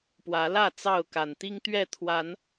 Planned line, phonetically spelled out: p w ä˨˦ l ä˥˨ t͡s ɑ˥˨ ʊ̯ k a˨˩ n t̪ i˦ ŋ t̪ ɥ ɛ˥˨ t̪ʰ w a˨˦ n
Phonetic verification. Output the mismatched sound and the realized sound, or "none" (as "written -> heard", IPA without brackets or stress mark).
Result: none